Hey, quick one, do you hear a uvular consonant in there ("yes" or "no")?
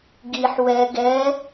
no